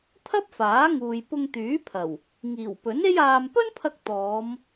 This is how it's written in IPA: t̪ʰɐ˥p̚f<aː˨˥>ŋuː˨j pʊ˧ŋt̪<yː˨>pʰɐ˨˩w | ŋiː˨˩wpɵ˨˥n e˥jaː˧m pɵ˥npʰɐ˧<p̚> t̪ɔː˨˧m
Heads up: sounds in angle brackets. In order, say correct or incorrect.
correct, incorrect: yː˨˥, incorrect: k̚

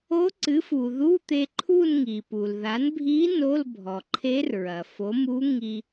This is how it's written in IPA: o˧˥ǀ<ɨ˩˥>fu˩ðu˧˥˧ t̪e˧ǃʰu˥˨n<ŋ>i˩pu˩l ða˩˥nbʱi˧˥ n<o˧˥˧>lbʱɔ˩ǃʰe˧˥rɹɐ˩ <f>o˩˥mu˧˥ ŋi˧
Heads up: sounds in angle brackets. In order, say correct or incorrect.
correct, correct, correct, correct

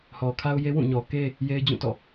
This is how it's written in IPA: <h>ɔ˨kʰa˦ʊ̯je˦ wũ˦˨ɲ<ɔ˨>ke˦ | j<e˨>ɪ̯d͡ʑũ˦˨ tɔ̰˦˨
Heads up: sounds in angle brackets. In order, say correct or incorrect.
correct, correct, incorrect: e˦

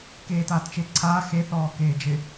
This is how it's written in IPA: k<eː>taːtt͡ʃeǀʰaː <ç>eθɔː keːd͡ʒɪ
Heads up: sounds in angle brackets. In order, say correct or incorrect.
correct, incorrect: x

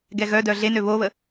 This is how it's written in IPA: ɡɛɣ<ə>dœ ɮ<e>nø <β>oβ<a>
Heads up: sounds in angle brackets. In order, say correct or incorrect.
incorrect: œ, correct, correct, incorrect: ə

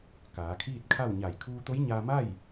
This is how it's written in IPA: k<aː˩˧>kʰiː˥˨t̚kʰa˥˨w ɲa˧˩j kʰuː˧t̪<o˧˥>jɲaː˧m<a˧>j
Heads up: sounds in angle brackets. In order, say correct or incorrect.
correct, correct, incorrect: a˥˨

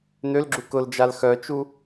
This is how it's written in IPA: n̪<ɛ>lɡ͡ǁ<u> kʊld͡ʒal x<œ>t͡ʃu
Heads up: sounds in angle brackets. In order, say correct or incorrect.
incorrect: ø, correct, correct

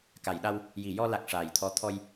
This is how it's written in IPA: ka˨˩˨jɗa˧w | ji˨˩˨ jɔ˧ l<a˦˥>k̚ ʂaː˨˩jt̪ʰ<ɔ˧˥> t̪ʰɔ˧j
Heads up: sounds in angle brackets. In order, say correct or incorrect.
incorrect: a˨˩, correct

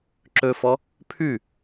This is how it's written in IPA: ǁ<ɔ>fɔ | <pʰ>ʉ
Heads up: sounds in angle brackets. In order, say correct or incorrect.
incorrect: ɵ, correct

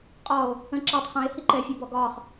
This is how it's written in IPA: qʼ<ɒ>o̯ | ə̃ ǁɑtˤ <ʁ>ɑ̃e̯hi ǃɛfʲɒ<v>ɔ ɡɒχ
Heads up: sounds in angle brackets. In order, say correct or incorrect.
correct, incorrect: χ, incorrect: b

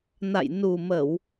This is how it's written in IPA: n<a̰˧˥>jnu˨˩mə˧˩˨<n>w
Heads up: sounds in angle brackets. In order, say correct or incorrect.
incorrect: a̰˧˨, incorrect: none

